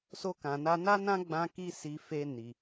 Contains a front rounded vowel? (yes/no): no